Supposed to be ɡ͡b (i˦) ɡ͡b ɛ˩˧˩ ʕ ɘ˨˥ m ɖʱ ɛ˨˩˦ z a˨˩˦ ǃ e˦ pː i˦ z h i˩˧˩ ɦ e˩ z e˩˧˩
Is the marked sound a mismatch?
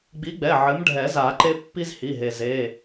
yes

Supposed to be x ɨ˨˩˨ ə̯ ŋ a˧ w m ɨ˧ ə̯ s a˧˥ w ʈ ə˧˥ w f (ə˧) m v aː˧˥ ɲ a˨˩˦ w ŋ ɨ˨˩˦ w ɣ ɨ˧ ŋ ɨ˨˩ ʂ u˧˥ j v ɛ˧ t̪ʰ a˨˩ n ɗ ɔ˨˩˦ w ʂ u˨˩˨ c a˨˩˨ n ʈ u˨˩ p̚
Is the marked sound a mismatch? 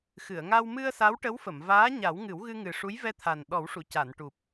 yes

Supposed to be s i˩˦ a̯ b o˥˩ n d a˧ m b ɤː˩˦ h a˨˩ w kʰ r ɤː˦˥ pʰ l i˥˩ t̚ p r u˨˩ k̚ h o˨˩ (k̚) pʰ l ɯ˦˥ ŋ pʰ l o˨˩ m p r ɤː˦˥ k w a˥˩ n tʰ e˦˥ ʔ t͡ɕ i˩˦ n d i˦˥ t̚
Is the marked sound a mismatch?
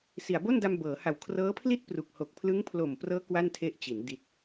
no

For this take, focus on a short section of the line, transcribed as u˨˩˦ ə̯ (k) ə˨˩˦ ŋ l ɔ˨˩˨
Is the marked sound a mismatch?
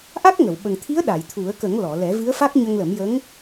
no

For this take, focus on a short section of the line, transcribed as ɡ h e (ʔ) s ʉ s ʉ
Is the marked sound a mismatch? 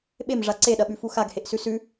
no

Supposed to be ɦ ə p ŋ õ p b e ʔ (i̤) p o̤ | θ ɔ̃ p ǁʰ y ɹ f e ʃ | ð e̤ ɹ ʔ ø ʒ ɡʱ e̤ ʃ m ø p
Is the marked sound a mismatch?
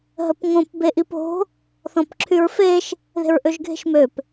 yes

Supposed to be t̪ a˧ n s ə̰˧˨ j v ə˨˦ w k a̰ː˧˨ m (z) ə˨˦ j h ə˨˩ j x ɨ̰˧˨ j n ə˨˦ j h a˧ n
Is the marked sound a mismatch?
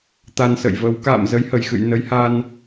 no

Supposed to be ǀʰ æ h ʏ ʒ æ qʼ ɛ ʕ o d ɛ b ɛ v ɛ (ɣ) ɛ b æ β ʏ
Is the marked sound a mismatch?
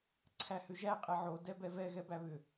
no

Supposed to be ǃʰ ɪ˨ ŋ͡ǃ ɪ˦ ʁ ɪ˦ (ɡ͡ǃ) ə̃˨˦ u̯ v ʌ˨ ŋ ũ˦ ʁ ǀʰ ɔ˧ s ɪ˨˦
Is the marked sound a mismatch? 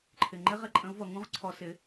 yes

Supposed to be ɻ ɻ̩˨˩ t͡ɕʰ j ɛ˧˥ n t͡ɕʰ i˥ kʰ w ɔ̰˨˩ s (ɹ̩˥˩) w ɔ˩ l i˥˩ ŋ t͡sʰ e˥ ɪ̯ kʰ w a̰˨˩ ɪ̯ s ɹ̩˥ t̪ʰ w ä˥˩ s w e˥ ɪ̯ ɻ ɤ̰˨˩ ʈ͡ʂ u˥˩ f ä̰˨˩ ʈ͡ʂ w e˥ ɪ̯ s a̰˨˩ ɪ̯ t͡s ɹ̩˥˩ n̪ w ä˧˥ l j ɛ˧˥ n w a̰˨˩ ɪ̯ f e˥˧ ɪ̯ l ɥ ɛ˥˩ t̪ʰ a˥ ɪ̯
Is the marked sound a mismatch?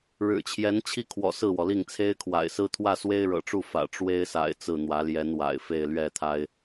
no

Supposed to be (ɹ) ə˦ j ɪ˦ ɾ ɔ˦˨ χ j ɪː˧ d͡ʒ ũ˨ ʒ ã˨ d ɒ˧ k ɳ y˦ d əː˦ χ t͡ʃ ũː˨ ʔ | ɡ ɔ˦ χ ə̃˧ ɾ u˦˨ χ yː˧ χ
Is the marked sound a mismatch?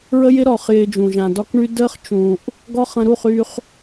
no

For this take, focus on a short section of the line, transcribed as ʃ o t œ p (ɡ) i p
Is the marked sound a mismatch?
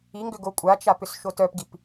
no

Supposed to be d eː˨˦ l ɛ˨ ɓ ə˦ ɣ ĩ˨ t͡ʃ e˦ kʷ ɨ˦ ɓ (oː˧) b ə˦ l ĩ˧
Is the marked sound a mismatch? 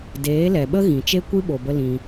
yes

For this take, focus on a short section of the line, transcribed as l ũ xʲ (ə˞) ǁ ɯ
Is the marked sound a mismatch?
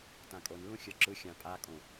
no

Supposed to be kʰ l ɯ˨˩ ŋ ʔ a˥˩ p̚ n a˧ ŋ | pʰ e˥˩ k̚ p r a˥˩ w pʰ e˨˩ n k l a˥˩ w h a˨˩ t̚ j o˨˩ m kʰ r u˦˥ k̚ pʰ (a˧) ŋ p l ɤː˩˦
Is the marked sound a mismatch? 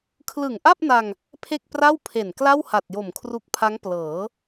yes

